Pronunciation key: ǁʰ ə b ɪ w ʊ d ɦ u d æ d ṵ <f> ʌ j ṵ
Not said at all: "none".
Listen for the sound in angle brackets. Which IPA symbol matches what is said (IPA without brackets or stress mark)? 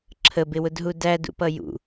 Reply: p